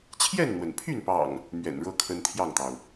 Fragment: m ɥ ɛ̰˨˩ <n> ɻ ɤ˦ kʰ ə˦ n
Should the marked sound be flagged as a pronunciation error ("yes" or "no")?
no